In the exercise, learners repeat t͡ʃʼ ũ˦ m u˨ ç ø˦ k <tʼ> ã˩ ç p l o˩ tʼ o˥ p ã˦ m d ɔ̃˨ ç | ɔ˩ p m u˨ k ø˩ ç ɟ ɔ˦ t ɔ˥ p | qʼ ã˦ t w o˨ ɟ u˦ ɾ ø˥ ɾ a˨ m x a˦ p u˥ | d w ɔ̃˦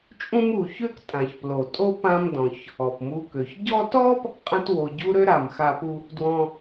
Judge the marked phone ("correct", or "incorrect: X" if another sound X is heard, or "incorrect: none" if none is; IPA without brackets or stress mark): correct